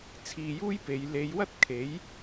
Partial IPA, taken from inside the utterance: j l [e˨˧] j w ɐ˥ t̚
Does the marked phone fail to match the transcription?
no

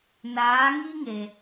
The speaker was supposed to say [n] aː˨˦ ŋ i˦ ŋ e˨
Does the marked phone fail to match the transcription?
no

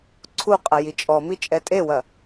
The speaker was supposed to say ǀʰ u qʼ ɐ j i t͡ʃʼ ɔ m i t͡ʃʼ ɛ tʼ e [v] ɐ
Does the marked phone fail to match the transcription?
yes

